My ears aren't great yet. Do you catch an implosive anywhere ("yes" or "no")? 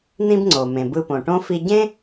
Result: no